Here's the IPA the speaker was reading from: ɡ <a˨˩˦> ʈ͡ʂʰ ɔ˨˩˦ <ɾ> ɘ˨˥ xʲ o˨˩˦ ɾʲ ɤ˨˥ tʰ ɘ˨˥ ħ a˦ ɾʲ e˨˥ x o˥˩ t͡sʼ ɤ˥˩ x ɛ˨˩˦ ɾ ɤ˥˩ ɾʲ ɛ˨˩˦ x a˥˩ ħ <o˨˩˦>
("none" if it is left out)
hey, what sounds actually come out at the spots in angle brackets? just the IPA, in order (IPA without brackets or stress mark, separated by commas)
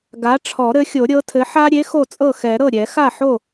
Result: a˨˥, ɾ, o˥˩